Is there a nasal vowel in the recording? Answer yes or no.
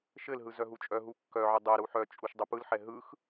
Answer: no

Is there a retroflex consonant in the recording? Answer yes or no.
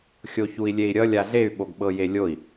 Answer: no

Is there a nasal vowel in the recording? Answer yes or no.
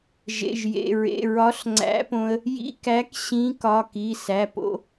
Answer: yes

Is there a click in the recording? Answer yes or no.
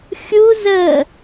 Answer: no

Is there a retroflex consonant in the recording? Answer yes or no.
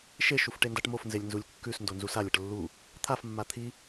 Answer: yes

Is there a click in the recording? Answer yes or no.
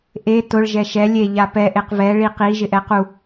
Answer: no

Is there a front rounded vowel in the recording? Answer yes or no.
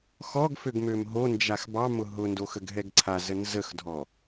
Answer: yes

